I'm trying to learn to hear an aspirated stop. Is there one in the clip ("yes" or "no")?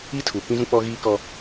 yes